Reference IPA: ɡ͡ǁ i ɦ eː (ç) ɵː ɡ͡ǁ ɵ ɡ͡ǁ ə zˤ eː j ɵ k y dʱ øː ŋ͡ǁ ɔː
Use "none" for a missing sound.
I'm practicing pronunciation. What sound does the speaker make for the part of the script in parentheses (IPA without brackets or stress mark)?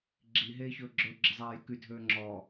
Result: ç